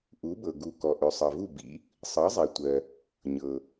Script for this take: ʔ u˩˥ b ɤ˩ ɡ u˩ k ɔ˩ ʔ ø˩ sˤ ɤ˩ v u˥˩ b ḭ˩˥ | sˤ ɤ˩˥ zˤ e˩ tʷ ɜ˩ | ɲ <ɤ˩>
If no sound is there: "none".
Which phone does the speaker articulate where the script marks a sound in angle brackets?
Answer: ɤ˩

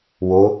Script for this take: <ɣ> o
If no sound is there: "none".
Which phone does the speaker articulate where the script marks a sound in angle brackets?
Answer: w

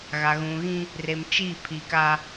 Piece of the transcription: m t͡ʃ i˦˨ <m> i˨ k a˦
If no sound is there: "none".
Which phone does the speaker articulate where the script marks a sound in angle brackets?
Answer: pʰ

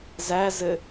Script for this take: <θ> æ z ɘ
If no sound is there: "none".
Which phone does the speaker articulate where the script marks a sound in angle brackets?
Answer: z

